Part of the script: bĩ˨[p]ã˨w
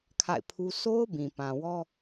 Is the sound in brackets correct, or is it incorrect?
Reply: correct